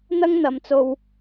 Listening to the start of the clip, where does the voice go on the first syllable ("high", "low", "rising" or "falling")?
high